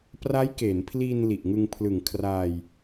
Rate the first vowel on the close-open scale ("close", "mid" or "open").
open